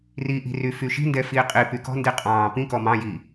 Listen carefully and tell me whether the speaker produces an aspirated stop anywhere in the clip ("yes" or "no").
no